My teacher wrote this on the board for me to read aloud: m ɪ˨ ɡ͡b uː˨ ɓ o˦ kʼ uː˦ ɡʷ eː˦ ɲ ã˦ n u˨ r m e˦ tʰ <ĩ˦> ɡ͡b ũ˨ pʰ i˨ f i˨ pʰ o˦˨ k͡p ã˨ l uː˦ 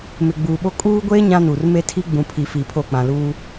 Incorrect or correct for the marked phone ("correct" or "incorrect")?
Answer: incorrect